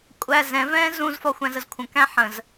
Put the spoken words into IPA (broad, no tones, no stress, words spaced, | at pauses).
kʷʼæ zɛ̃vɛ̃ː zũzfɒ xʷæ̃zəzkʷʰə̃kæ̃ ħə̃z